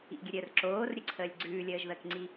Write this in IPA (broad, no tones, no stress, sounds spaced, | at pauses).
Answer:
ḭ ɡʲ ə ɾʲ əː r ǁ oː r ɾʲ ə ǀʰ əː lʲ ɡ͡ǀ ʉː lʲ əː ʒ ð əː k ŋ͡ǀ i